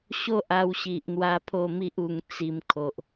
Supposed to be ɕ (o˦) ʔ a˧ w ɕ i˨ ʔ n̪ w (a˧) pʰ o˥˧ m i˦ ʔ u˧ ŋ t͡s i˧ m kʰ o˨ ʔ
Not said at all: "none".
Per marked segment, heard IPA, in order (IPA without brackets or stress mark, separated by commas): o˦, a˧